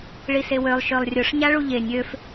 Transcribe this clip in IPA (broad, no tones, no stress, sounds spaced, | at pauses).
ɭ i s e w ø lˠ ʃ ø lˠ rʲ ʊ ʂ ɲ a ɭ u ʎ e nʲ ø f